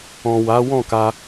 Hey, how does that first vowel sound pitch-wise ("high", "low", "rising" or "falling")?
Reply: low